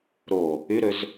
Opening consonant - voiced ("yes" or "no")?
yes